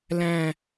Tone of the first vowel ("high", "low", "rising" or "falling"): low